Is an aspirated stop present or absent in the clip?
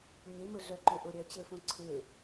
present